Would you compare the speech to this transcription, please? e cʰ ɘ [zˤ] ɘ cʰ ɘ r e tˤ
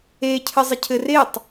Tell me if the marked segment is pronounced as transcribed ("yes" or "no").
yes